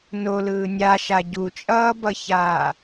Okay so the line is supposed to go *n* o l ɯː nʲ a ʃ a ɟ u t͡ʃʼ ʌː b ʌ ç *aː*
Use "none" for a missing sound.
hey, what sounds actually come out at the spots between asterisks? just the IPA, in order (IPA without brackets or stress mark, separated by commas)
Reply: n, aː